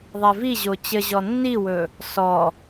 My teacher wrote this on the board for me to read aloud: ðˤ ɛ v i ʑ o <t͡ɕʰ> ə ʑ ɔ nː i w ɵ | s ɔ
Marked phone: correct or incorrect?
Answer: incorrect